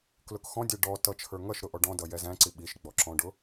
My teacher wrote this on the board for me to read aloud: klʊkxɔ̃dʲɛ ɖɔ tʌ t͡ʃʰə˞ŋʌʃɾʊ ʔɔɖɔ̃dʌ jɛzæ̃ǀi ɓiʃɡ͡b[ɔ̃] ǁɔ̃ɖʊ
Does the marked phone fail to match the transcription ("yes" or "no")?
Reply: yes